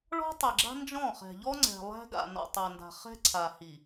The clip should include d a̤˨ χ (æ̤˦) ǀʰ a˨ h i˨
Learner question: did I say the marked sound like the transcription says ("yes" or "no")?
no